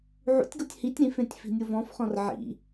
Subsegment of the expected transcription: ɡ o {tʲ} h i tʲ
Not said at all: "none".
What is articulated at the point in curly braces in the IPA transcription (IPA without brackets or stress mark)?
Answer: tʲ